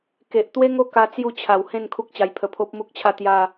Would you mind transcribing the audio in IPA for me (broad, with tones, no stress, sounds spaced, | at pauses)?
k e˨ ʔ t̪ w e˦ ŋ o˦ k a˦ t͡s j u˥˧ t͡ɕʰ a˨˩ w h ẽ˥˧ n kʰ u˦ k̚ t͡ɕ a˧ j pʰ ə˧ pʰ o˦ p̚ m u˦ k̚ t͡ɕʰ a˥˧ t̪ j a˥˧